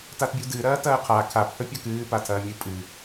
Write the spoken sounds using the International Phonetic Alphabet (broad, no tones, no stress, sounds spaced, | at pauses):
t a t bʲ u d ɨ ɾ ɐː t ɐː qʰ a kʰ a p h ɵ pʲ ɐ k ɨː p a tʰ ɐː mʲ ɨ pʼ ɨ